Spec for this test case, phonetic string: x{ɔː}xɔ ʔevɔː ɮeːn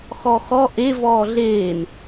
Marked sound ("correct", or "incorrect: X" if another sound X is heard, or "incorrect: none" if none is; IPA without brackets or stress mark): incorrect: ɔ